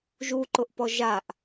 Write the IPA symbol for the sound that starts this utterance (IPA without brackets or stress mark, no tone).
ʒ